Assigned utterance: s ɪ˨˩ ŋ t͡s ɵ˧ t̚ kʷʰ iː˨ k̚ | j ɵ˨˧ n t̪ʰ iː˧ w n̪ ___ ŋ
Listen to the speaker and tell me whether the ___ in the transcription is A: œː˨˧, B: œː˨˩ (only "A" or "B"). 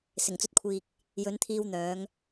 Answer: A